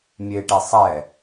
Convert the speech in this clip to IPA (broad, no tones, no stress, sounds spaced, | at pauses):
mʲ e ʈ e sˤ ɛ